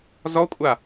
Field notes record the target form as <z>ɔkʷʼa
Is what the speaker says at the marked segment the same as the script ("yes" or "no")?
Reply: yes